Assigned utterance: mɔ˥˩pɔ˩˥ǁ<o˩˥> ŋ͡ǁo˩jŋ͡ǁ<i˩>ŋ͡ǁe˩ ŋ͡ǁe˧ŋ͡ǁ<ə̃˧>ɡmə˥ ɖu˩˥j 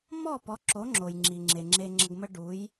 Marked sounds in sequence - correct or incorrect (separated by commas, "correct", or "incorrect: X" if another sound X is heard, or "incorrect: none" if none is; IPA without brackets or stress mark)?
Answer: correct, correct, incorrect: ə˧